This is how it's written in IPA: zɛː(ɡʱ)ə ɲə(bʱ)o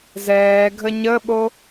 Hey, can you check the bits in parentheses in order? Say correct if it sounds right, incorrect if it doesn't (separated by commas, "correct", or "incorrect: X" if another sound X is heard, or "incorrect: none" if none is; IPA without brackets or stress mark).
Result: correct, incorrect: ɓ